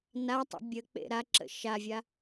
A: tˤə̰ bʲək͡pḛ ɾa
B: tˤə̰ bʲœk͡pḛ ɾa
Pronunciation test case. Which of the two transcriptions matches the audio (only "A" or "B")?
A